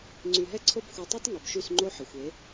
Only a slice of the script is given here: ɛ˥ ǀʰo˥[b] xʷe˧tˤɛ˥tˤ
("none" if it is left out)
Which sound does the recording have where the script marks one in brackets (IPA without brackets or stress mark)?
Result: b